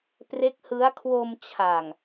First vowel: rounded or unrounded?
unrounded